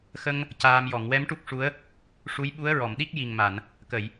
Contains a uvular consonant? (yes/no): no